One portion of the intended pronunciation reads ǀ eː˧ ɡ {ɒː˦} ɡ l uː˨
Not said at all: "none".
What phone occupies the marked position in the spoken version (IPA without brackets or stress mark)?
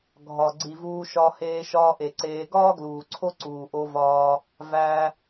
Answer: ɒː˦